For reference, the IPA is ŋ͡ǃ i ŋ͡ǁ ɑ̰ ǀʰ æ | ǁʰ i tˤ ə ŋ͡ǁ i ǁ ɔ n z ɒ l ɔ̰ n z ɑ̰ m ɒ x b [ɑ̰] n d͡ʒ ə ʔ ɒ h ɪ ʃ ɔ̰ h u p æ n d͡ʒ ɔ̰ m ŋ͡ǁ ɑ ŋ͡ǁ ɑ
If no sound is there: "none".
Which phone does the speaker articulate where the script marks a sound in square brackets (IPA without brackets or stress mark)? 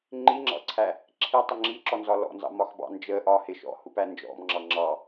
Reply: ɑ̰